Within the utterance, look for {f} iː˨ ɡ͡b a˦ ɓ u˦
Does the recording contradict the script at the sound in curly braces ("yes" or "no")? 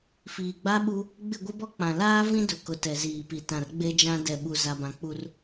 no